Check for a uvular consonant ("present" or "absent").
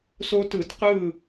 present